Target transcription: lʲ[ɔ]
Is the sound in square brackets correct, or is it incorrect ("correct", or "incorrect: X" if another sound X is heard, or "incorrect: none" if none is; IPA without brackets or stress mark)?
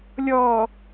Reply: correct